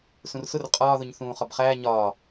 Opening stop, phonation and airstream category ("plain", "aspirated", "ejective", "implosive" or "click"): ejective